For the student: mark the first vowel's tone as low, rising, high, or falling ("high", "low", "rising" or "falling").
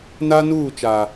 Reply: high